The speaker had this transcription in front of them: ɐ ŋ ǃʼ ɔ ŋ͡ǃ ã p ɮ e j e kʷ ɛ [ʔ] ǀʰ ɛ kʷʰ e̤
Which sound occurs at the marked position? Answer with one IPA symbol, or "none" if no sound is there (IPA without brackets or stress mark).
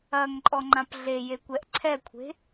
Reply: ʔ